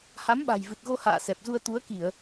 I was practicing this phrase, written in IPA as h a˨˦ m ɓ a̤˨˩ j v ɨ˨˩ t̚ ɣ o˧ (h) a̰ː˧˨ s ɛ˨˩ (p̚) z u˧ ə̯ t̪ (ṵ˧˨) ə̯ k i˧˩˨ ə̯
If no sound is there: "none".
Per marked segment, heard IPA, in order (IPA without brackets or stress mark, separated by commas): h, p̚, u˨˦